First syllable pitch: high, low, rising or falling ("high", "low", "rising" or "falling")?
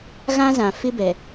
high